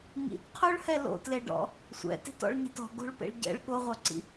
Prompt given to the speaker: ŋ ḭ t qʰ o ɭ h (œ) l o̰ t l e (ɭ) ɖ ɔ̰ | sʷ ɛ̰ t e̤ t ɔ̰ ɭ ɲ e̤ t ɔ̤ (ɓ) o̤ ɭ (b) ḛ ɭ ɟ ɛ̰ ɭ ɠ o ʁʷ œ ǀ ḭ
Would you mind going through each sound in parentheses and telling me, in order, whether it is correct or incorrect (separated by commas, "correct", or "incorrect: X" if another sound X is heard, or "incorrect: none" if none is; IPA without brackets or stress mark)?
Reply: incorrect: ɛ, incorrect: none, incorrect: ɡ, incorrect: p